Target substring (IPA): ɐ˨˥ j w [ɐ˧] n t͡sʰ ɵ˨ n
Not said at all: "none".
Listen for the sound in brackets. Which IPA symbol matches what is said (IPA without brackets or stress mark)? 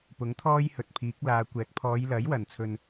ɐ˨˩